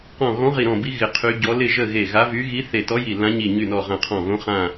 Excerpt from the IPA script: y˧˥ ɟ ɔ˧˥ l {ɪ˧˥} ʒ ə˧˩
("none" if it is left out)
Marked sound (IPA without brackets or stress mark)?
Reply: ɪ˧˩